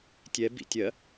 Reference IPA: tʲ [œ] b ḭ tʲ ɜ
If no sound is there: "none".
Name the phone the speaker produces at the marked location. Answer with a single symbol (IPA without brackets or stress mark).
ɛ